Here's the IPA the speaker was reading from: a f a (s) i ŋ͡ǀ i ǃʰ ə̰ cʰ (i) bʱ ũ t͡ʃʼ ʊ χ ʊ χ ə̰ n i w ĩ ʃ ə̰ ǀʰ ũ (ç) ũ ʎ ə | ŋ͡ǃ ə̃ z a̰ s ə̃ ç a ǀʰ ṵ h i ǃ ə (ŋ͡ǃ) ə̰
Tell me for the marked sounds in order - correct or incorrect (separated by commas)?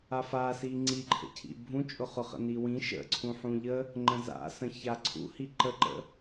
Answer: correct, incorrect, incorrect, incorrect